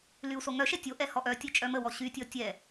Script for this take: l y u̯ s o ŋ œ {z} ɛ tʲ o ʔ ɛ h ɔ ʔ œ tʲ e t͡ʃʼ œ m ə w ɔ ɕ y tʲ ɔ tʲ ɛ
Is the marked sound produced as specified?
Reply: no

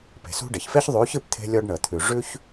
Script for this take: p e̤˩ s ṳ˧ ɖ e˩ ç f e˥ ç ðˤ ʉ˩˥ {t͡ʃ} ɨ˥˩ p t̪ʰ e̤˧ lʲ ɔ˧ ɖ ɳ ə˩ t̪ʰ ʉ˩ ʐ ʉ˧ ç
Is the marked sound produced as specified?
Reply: no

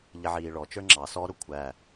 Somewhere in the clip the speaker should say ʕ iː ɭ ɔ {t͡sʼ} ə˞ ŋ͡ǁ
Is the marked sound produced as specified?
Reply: no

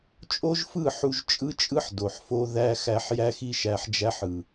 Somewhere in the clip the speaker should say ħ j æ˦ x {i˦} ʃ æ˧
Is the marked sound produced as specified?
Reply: yes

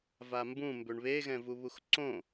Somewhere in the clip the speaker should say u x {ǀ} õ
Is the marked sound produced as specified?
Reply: yes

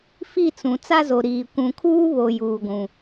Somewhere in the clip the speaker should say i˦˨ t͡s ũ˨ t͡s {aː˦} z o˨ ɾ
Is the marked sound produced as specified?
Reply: no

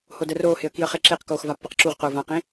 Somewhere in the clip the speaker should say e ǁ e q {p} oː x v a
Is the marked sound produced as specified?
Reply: no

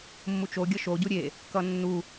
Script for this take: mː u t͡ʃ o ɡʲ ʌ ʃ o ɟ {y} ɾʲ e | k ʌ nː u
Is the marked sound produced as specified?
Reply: no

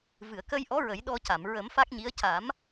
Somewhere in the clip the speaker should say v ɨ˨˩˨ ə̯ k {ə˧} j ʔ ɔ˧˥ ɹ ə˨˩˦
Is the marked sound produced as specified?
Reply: yes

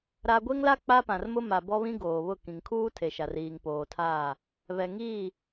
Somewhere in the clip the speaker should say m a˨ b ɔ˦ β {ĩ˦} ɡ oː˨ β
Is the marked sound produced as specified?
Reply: yes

